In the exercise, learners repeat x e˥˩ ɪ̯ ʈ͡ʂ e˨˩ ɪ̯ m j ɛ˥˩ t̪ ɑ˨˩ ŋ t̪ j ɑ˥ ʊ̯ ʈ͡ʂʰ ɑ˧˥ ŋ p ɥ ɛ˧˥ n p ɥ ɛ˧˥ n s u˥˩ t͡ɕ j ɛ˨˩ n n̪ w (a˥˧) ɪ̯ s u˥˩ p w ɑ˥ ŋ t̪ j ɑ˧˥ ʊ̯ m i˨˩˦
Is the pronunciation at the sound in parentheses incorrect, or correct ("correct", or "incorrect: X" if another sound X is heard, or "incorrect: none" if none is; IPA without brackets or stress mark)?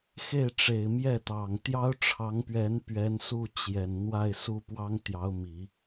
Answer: correct